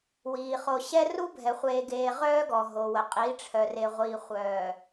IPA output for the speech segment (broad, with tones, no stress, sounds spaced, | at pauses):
w iː˨ χ o˨ ɕ ɛ˦ r u˦ bʱ ɛ˨ χʷ eː˨ ɡ eː˨ ʁ œː˦ ɡ ɔ˨ ɦ o˨ w ə˨ qʼ i˨˦ ʈ͡ʂʰ œ˨ r e˨ ʁʷ iː˨ χʷ œː˨